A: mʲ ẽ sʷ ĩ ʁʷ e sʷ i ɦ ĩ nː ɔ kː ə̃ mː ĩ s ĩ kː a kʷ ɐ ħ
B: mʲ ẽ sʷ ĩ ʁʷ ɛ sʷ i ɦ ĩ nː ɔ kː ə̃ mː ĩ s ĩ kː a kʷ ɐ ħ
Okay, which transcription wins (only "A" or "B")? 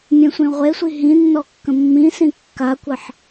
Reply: A